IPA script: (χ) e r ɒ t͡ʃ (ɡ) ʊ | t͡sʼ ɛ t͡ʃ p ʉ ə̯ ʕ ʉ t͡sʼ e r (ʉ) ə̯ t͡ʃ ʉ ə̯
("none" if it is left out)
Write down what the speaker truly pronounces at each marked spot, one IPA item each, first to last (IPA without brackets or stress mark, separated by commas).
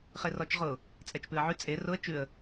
χ, ʁ, ʊ